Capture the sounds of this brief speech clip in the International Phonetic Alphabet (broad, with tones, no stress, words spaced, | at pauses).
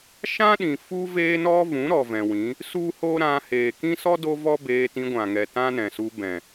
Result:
ʃã˦ɗĩ˨ fu˦veː˦nɔ˦vũ˨˦ ɾɔ˨vɛ̃˨wĩ˨˦ | su˦ho˦ ɾã˧ heː˨kĩ˦sɔ˦ do˦vɔ˦beː˧ tĩ˧ɡʷã˨ŋɛ˨ tã˦nɛ̃˨su˧ bɛ̃˨